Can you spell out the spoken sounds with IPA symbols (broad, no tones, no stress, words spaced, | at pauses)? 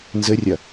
nzɘrʲɐ